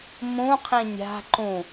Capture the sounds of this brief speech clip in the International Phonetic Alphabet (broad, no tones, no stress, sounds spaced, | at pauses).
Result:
m ũ qʰ ĩ nʲ a̤ ǃ ũ